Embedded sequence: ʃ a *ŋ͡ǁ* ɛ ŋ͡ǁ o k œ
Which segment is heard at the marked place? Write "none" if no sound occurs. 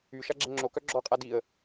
ɡ͡ǁ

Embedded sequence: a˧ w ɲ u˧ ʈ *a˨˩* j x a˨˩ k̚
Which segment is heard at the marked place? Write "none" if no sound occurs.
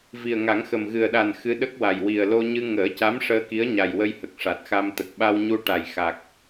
a˨˩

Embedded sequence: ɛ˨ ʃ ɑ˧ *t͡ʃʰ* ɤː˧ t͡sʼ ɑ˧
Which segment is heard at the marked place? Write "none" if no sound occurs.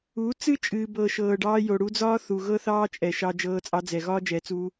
d͡ʒ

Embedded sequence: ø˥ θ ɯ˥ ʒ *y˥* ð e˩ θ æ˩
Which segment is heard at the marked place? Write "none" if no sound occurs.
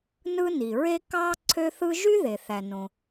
y˥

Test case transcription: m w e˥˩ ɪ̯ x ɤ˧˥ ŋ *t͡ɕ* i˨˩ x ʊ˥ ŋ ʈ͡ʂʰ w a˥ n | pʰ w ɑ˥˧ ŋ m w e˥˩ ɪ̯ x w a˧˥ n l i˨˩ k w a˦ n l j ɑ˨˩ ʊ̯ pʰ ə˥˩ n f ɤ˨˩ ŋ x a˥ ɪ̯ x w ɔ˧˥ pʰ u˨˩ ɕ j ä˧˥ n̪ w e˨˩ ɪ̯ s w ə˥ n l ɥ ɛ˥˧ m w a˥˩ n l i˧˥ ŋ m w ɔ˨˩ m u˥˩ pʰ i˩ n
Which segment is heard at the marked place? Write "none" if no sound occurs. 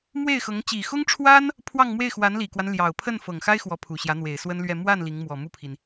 t͡ɕ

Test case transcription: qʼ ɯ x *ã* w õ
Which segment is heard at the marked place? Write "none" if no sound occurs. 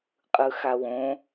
a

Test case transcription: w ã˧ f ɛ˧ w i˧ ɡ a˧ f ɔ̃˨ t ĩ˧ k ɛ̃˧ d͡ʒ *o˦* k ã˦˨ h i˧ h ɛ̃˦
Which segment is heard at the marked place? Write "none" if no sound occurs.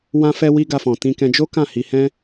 o˦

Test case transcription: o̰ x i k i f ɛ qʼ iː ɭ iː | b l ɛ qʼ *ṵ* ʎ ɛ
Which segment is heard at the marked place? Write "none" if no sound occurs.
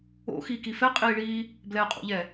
ṵ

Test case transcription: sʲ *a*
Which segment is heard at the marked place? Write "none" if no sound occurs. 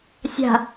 a̤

